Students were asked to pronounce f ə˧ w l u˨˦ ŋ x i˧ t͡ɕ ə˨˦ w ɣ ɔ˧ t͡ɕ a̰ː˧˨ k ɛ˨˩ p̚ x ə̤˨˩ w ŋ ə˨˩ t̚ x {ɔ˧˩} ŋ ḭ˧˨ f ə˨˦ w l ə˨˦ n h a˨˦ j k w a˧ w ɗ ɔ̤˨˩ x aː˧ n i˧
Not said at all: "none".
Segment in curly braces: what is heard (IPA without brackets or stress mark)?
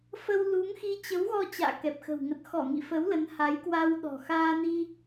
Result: ɔ˧˩